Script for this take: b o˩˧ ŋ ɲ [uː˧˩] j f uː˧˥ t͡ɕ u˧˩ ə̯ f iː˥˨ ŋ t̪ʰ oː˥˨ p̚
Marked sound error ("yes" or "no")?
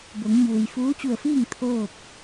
yes